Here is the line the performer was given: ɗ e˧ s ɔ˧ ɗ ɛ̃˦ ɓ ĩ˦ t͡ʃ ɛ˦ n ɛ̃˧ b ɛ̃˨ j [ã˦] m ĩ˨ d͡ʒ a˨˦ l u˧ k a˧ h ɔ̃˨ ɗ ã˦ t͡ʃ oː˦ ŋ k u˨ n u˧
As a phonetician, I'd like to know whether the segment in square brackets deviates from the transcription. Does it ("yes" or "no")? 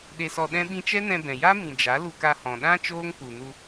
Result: yes